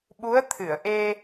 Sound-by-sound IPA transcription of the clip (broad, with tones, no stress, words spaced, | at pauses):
ɓu˧˥ə̯t̪ʰɨ˨˩˨ə̯ ʔe˧